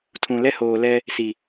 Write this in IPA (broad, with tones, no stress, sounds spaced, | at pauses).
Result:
tʰ ũ˨ l ɛ˦ h oː˨ l ɛ˦ | s i˨